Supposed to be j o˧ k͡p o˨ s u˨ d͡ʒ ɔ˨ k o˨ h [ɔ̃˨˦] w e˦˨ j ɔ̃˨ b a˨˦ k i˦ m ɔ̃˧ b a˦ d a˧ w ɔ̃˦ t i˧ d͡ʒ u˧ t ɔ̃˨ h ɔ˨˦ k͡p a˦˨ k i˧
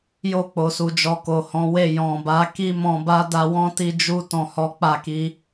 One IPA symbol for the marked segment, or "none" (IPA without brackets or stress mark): ɔ̃˨˦